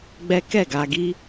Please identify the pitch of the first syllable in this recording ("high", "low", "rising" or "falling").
high